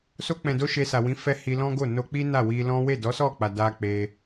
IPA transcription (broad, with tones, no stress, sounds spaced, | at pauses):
s o˧ k͡p ɛ̃˨ d o˧ ʃ e˧ s a˨ w ĩ˨˦ f ɛ˧ h i˧ l ɔ̃˦ ɡ o˦˨ n o˧ k͡p i˦ n a˦˨ w i˧ l ɔ̃˦ w e˦˨ d ɔ˨˦ s ɔ˦˨ k͡p a˨ d a˧ k͡p e˧